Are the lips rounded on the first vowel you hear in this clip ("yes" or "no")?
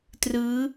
no